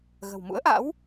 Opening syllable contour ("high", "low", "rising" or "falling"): low